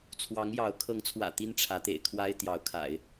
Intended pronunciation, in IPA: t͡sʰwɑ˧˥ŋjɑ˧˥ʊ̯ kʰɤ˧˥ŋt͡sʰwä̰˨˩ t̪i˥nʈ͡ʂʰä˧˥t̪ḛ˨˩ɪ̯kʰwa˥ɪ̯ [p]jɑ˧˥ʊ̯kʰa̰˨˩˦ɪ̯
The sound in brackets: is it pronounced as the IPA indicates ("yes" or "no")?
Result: no